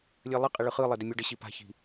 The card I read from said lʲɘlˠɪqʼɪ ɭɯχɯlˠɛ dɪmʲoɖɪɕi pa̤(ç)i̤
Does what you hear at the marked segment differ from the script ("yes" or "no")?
no